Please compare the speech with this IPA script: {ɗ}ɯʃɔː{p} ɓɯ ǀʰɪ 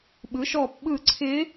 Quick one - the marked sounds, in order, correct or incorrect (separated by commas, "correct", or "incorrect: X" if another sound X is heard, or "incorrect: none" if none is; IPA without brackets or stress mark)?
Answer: incorrect: ɓ, correct